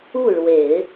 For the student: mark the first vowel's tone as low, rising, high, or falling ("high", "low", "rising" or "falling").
falling